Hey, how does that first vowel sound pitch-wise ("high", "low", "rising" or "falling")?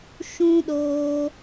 high